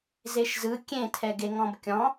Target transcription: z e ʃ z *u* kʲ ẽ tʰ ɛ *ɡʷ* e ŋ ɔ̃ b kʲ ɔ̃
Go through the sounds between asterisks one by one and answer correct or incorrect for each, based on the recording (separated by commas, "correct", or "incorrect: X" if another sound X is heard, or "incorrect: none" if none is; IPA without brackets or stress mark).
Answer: incorrect: ɯ, incorrect: ɡ